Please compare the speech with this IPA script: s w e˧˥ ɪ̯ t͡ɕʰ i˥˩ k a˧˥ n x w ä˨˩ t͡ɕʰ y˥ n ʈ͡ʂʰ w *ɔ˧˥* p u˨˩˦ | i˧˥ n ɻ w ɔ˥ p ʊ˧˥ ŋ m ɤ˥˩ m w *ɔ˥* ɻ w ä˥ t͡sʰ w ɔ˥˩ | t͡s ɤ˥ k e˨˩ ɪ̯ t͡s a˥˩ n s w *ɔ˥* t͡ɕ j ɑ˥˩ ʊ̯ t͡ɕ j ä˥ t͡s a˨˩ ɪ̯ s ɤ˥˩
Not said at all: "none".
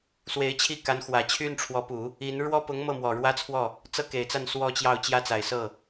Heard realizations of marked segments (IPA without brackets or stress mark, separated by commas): ɔ˧˥, ɔ˨˩, ɔ˥